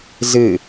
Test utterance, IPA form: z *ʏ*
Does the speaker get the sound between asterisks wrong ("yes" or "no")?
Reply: yes